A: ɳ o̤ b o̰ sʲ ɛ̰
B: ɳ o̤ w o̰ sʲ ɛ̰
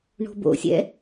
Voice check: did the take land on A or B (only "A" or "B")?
A